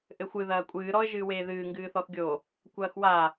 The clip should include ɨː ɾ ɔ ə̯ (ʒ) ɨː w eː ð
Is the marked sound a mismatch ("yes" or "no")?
no